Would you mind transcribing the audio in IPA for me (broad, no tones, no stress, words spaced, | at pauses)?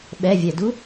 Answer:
ɓɛvʲɛdu